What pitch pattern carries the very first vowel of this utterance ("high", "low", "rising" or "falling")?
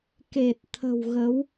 low